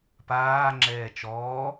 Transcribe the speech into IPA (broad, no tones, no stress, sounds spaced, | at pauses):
p aː ŋ͡ǁ ɛː t͡ʃ ɔː